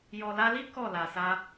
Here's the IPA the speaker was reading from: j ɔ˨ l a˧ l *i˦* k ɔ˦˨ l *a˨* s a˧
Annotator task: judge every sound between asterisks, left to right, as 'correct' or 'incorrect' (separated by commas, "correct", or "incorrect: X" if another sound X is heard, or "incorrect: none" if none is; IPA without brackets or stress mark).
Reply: correct, correct